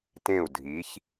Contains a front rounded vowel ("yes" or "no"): no